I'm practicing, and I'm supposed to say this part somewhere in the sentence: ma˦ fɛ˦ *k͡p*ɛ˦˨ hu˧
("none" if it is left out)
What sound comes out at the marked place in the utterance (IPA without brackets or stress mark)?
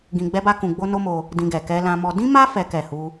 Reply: k